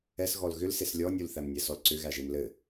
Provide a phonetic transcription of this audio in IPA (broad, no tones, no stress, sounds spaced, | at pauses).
ɛ s ɣ ɔ l ɣ ʏ l s e s lʲ ɔ nʲ u l θ æ m nʲ ɛ s ɔ l ǀ ʏ ɣ æ ʒ e m l ɘ